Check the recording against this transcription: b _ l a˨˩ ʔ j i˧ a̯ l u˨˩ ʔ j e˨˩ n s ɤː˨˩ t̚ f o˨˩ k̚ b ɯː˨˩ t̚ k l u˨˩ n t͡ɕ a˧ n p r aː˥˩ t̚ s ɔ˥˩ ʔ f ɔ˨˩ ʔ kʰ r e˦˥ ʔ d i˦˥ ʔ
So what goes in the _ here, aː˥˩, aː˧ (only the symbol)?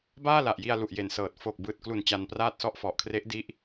aː˥˩